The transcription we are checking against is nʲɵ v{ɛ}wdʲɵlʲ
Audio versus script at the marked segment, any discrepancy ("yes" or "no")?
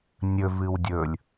yes